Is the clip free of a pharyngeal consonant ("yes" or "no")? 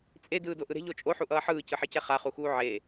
no